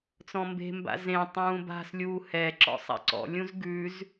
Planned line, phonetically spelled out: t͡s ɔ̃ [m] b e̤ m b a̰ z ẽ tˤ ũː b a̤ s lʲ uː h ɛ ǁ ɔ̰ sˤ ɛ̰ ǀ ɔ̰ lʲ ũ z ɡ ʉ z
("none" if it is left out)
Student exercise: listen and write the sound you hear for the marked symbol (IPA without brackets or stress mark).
m